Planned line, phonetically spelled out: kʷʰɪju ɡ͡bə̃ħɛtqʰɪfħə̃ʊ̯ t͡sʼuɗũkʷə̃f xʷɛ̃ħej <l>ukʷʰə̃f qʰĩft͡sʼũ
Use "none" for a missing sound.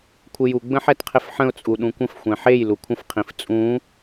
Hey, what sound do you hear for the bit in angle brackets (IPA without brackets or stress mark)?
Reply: l